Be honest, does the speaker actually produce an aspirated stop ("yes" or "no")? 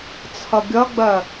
yes